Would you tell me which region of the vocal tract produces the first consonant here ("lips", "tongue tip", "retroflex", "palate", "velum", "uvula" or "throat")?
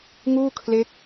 velum